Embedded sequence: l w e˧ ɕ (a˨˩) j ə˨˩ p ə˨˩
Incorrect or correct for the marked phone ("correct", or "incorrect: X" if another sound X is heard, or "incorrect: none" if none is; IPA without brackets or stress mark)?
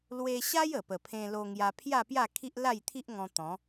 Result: incorrect: a˦